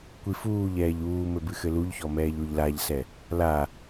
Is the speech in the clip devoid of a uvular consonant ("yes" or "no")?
yes